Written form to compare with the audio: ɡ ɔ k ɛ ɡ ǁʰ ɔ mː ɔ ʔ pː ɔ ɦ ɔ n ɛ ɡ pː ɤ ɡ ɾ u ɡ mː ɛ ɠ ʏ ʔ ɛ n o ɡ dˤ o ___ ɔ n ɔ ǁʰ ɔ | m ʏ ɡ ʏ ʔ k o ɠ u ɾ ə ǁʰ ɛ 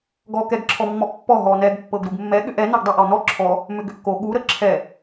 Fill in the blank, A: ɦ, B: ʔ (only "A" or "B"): B